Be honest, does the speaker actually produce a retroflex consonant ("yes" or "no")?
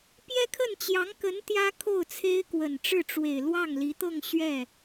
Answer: yes